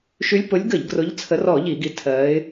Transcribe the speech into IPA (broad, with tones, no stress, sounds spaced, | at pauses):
ʃ y˨˦ lʲ p ʊ˨˦ lʲ ɡ ə˧˩˧ ʎ ɡ r ʊ˨˦ ʎ t͡sʰ ə˨˦ r ɔ˧˩˧ ʎ i˧˩˧ ɡ i˨˦ tʰ ɜ˨˦ ɪ̯